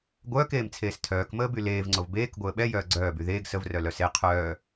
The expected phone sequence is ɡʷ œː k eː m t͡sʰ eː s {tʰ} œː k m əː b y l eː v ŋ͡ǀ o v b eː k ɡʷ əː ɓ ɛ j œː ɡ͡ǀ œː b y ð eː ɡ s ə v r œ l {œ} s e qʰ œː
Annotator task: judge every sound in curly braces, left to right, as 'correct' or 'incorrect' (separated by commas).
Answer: correct, correct